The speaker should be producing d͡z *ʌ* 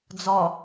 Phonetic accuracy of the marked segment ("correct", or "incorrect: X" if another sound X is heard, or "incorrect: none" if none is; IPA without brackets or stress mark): incorrect: ɒ